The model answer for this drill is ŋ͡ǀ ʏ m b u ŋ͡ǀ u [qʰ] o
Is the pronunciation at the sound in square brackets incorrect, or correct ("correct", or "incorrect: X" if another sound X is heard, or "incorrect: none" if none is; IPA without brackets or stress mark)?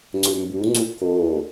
incorrect: k